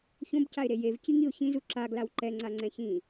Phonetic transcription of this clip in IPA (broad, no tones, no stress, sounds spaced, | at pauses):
ç õ b c a ɪ̯ ɾ e j e v c i ŋ i ʊ̯ ç ĩ z u ǁ a ɡ l a w ǃ ɛ ŋ͡ǀ a ŋ͡ǀ ɛ̃ ç ĩ